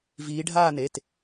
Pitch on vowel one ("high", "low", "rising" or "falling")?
rising